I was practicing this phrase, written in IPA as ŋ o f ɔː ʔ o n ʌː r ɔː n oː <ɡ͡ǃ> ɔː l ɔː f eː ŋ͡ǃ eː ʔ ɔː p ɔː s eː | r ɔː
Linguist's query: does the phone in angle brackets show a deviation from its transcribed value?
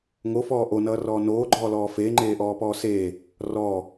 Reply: no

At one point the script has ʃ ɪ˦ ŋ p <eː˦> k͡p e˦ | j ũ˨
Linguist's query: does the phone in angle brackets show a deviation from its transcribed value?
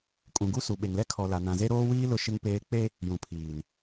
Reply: no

